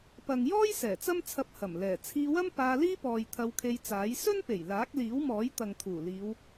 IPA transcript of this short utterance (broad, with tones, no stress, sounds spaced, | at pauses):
p ɐ˨ ŋ j ɔː˥ j s ɛː˨˩ t͡s ɐ˥ m t͡sʰ ɐ˧ p̚ h ɐ˨˩ m l ɛː˨˩ t͡sʰ iː˧ w ɐ˥ m p aː˧ l iː˥ p ɔː˨ j t̪ʰ ɐ˧ w kʰ e˧ j t͡s aː˨˥ j s ɵ˥ n p e˨˩ j l aː˨˥ k̚ l iː˨˥ w m ɔː˨˥ j t̪ ɐ˨ ŋ t̪ʰ uː˨˩ l iː˨˧ w